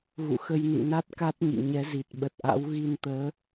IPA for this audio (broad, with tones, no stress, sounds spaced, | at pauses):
ɣ ṵ˧˨ x ə˧ j n ḭ˧˨ n a˦˥ t̚ k a˦˥ t̚ ɲ ḭ˧˨ ɲ ɛ˨˦ z i˨˩ t̚ ɓ ə˨˩ t̚ ʔ a̰˧˥ w ɣ i˧ n t̪ əː˨˦